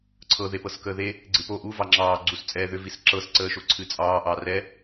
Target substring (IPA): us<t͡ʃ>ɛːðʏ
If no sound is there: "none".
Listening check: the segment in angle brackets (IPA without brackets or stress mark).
t͡sʼ